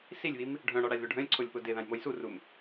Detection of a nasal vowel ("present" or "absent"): present